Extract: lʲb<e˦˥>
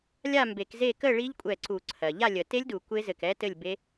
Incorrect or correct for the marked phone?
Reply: correct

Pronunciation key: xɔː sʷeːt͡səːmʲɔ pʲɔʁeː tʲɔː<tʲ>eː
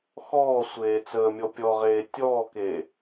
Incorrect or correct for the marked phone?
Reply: incorrect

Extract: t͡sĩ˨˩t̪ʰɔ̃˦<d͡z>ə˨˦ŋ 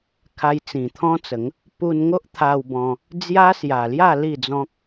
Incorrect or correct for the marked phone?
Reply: incorrect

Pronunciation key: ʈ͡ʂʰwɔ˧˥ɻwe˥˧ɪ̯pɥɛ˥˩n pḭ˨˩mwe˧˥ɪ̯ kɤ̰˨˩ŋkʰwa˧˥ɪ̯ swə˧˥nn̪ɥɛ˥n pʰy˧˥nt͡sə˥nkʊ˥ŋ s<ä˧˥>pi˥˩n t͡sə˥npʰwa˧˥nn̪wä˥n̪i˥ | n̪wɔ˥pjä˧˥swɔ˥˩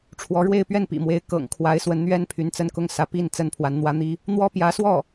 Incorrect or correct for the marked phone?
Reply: correct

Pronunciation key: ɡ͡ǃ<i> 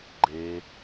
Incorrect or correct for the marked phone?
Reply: incorrect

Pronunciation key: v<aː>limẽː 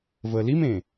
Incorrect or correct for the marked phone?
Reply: incorrect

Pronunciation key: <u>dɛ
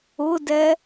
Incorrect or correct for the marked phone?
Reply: incorrect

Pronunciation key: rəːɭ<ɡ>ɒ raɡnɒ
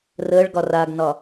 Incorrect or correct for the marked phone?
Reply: correct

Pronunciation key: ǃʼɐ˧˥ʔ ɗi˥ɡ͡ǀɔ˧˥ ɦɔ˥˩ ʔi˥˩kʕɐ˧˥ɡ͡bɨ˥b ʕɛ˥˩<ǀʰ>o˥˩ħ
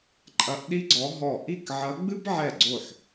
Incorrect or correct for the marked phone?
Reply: incorrect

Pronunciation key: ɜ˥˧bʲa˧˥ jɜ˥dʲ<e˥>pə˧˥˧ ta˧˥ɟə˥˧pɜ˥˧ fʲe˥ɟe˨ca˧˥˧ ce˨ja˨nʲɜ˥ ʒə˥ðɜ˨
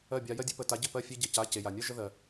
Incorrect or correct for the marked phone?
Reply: correct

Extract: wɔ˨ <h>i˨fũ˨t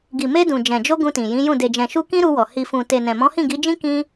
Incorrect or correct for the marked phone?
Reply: correct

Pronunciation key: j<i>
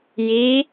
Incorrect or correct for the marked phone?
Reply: correct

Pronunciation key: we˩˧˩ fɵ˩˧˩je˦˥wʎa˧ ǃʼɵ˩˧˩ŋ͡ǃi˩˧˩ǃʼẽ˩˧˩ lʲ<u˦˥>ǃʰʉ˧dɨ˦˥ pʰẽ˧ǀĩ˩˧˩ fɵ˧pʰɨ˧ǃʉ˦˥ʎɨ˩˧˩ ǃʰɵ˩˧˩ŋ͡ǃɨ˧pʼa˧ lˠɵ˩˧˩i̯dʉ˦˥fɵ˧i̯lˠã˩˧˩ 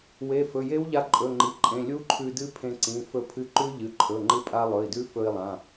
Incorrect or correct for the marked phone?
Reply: correct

